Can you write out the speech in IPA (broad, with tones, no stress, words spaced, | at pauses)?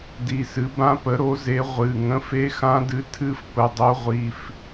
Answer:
di˩˧˩sɨ˩˥bã˧˥pə˩˥ ɾo˩˥ze˩˥ ʁʷɨ˩˧˩ ŋə̃˧˥fe˧˥ xã˧˥dɨ˩˥tʰɨ˧˥f pə˩˧˩dˤo˧˥ʁʷi˩˧˩f